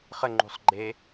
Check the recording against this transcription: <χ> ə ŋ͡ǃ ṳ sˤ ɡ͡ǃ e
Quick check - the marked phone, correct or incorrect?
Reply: correct